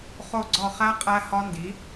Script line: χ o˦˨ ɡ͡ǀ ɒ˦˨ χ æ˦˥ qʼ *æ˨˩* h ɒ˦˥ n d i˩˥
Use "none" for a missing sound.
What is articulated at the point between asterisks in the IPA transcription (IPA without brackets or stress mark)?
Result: æ˦˥